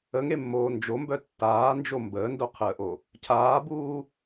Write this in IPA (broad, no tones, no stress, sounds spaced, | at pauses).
ə ŋ e mː oː n d͡ʒ o m b œ tː aː n d͡ʒ o m b əː n d o qʰ əː ʔ o | cʰ aː b uː